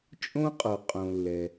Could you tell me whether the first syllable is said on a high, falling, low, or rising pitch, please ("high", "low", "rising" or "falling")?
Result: high